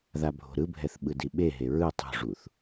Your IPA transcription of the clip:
ð a bʱ o̤ ɾ ɯ bʱ ɛ θ ɓ ɯ d i ɓ e ɦ e ɹ ɯ tˤ ṳ ʐ u θ

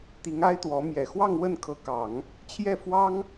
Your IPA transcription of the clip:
t̪ i˧˥ ŋ a˥ ɪ̯ t̪ w ɔ˧˥ m j ɛ˨˩ x w ɑ˥˧ ŋ w ə˥˩ n kʰ ɤ˧˥ k ɑ˨˩˦ ŋ | t͡ɕʰ j ɛ˥˩ f w ɑ˥ ŋ

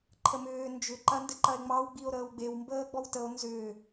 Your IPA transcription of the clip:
ǃʰ ə m ʏː n d͡ʒ ʏ ǃ ɐ n d ɘ ǃ ɐ e̯ ŋ͡m ɑ w ɡ͡b i o̯ ɾ əː w ɡ͡b e w m b əː ɡ͡b ɔ w t ə o̯ n z ʏː

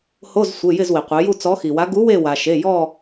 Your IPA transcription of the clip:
h o˧˥˧ z sʷ ɪ˩˧˩ j ɪ˦˨ z w i˩ qʷ e˩˧ j u˦˨ t͡s ɔ˨˥ x i˩ w a˨˥ ɡ u˨˥ w e˦˨ w a˩ ʃ e˩˧˩ j ɔ˦˨

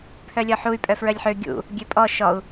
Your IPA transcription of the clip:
pʰ œ lʲ ɔ ħ u y̯ pʼ œ f ɹ œ lʲ ħ ø ɡʲ ṵ | ɡʲ ø pʼ ɔ ʃ ɔ u̯

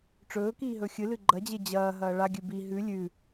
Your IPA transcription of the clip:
ʈ͡ʂ ɵː k iː ɦ ɵ xʲ ɨ l ɨ ɡ͡ǃ ɐ d͡ʑ e d͡ʑ ɐː ɦ ɐː ɭ a ɡʲ ʉ b i ɦ ʉ lʲ ʉ

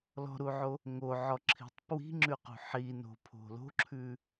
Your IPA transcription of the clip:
l ɔ̤ ɾ u ʕ o | ŋ o ʕ ɔ ǁʰ i̤ tˤ p w i̤ ŋ͡ǁ ʉ q ṳ ħ i n o̤ pʰ o̤ l o̤ ǁʰ ʉ

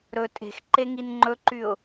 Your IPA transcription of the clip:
ɾ ɵ tʼ e̤ x ǃ e ŋ i n ŋ͡ǃ ɵ ǃ y ʊ̯

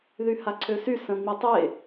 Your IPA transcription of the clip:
ð y h a ǀʰ ø s y s ə̃ ŋ͡m i tˤ e

